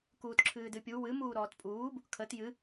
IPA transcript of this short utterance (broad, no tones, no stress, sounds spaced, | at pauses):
k uː t ǁʰ ɨː d ɨ pʲ u w ɨ m uː ɾ ɔː t pʼ uː b | kʰ ə t j ɨ